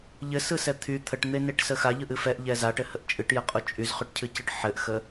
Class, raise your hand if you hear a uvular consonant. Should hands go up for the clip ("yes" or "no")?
yes